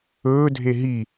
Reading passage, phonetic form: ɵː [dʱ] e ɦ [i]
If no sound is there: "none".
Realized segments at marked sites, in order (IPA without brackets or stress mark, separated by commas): dʱ, i